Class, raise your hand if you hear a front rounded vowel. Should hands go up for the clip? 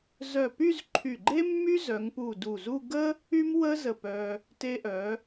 yes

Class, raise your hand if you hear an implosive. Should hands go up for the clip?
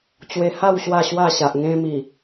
no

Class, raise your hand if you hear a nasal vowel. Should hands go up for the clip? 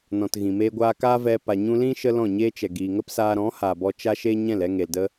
yes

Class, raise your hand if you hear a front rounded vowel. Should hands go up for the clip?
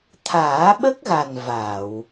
no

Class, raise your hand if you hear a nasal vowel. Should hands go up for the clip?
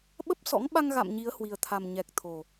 no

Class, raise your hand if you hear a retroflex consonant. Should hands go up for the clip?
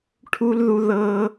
yes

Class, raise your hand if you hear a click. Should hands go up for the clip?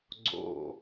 yes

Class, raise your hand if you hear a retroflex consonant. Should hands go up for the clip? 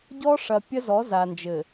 yes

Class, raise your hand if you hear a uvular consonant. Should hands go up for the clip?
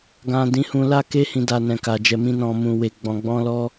no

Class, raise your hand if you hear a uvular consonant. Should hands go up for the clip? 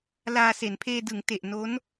no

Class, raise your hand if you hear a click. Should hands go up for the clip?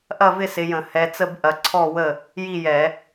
yes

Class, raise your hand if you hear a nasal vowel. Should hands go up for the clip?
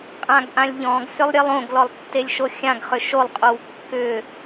yes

